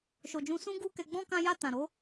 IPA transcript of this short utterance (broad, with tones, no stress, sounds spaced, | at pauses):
ʃ o˨ d͡ʒ ũ˧ s ũ˦ ɡ u˦ k ɛ˧ ɡ͡b ɔ̃˦ k ã˧ j a˧ t ã˨ ɾ o˨˦